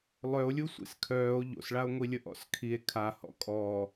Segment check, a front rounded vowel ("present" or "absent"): present